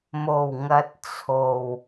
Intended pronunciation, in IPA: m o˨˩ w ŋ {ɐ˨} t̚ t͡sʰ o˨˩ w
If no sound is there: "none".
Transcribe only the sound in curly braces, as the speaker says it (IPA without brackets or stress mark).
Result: ɐ˨